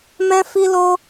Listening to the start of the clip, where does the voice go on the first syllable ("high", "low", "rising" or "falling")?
high